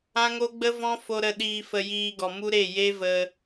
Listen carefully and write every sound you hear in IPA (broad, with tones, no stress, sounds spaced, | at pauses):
ã˦ ŋ o˦ ɡ͡b ə˦ v ɔ̃˦ f o˧ ɾ ə˧ ɗ iː˧ f ə˧ j iː˧ ɡ ɔ˨ m u˦ ɾ e˦˨ j e˦ v ə˧